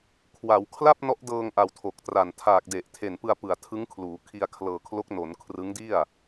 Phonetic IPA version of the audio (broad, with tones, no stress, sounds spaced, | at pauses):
kʰ w a˩˦ w kʰ l a˥˩ p̚ n ɔ˦˥ ʔ d ɤː˧ ŋ ʔ a˨˩ w tʰ o˨˩ k̚ t r a˨˩ n tʰ aː˨˩ k̚ d e˨˩ ʔ tʰ e˨˩ n p ɯ˧ a̯ p ɯ˨˩ a̯ tʰ ɯ˦˥ ŋ kʰ l uː˩˦ kʰ i˧ a̯ kʰ l ɤː˧ kʰ l o˦˥ k̚ n o˩˦ n kʰ r ɯ˦˥ ŋ d i˥˩ a̯